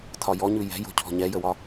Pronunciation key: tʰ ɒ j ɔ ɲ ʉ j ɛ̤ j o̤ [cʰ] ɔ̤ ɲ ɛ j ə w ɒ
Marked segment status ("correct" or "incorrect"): correct